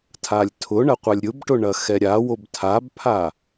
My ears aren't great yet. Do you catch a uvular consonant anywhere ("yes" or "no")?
yes